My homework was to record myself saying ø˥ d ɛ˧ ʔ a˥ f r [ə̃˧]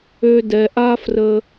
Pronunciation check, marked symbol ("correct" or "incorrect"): incorrect